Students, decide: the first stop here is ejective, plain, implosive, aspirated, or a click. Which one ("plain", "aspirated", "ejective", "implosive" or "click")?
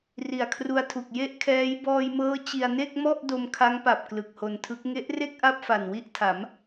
aspirated